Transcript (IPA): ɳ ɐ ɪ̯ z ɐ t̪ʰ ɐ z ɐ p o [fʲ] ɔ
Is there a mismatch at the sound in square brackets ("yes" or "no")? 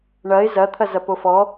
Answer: yes